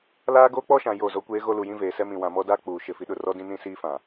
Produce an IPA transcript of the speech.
laː˦ɡoː˦k͡pɔ˦ʃã˨ jo˦˨zo˦kʷeː˦ɣo˦ lu˨jĩ˦veː˨sɛ˦ mĩ˨wã˨mɔ˦daː˦ k͡puː˨ʃɪ˦˨fi˦ɗʊ˦˨ rɔ˦dĩ˦ nĩ˦siː˦fã˨

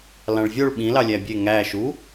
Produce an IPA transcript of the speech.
lɑ̃ɭvʲoɭ ɓĩ lɑlʲæbʲe ŋæ ʃu

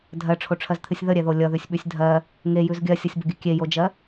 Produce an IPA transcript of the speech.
dʱɜʈ͡ʂʰoʈ͡ʂʰɜzt̪ʰɨsʲ ðəɾʲɛðo lʲʌðʉsʲɓʉsʲ dʱɜ | ŋejʉz ɡʲɜsʲʌsʲbəɡʲɨ kʲejod͡ʒɜ

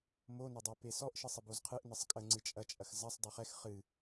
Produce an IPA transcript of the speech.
monɐdˤe pesɔʔ ʃɨsˤəbozqʰɨʔ nəsˤkʼəŋ͡ǀɨ t͡ʃʼɐt͡ʃʼɐx zɐsˤ dˤeχɛx χɨ

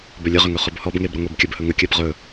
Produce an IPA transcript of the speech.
bɵlʲəʁʏŋɵ χɵbhɔbŋeb ɾəŋʷebkʲəb hɵŋəkʲɜb ʁɵ

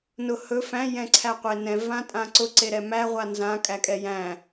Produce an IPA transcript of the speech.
nʊ hɵ fæ̃ jɛ̃ǀʰæqʷenɛ̃ vãtʼãǀʊ ǀeɾɛmæ ʁʷanzã kʼækʼɛjæ̃

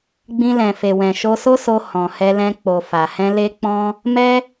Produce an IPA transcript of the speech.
ɡ͡bĩ˧lɛ̃˨fe˨wɛ̃˨ ʃo˧so˦so˧ hɔ̃˨hɛ˧lɛ̃˧ k͡po˨ fa˨hɛ̃˧ le˧k͡pɔ̃˧ | mɛ˦

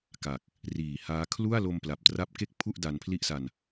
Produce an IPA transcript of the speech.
ka˨˩k̚ | riː˩˦haː˦˥ kʰlu˥˩a̯ lo˧mpla˨˩p̚tra˦˥p̚ ke˥˩k̚pʰu˥˩ʔ da˧npʰli˥˩ʔsa˧n

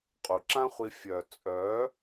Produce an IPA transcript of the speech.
qʼu˨ǁã˦χʷi˧ fʲœ˨t͡sʼœ˨˦

